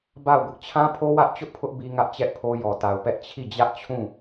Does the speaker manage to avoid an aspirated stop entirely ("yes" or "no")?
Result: no